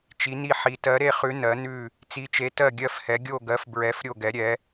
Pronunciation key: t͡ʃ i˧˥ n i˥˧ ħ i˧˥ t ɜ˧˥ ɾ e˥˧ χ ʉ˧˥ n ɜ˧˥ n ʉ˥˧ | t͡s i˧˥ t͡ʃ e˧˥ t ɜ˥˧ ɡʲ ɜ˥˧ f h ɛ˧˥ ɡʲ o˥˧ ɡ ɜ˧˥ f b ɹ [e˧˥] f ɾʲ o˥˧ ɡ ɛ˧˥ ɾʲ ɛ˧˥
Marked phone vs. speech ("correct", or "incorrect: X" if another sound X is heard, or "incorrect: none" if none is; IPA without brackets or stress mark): incorrect: ɛ˧˥